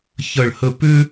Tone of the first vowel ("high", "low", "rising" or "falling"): falling